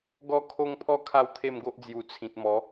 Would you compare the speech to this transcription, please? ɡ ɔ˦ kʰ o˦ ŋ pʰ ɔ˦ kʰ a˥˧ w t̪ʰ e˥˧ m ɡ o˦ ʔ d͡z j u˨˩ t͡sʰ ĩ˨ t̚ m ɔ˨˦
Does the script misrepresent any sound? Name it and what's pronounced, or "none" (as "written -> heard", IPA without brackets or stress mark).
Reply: none